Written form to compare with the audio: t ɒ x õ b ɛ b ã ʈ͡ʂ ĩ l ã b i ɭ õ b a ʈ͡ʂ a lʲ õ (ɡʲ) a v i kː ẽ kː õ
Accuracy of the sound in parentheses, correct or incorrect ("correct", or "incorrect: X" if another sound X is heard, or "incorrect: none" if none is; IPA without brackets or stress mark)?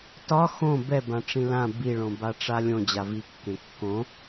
incorrect: d͡ʑ